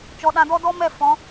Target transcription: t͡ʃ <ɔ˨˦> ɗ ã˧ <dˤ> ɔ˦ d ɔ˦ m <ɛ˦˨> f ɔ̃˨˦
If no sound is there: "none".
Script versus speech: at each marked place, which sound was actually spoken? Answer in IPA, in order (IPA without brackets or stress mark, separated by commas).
ɔ˨˦, d, ɛ˦˨